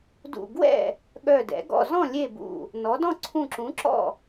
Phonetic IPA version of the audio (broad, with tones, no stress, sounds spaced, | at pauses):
d ṵ˧˩ ɡ w ɛ̰˥˩ | ɠ œ˧˩ d ɛ̰˩˥ ɡ ɔ̰˧˩ z ɔ̃˥˩ lʲ e˥˩ b ṵ˧˩ | n ɔ˩˥ d ɔ̃˥˩ ǀʰ ũ˧˩ ǁ ũ˩˥ ǁ ɔ̰˥˩